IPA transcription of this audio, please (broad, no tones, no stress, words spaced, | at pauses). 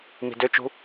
mi̤døt͡ʃṳ